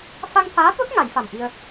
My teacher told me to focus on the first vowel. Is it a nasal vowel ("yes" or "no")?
no